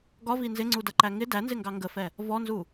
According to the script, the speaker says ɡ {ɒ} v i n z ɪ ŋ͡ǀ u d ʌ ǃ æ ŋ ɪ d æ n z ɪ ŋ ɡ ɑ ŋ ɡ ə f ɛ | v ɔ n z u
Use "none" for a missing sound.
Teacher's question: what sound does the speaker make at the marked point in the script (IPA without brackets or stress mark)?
ɒ